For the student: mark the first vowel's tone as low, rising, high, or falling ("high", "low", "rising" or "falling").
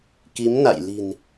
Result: rising